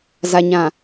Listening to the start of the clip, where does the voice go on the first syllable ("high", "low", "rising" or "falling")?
low